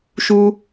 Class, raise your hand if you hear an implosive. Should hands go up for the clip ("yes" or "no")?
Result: no